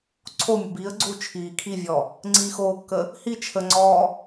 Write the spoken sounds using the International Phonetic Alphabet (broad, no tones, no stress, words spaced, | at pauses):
ǀʰomʲə biːə̯ɡ͡ǀuː t͡ʃʰiː kʰivʲɔ | ŋ͡ǀiːxoːkːə | hi t͡ʃʰəŋ͡ǀɔː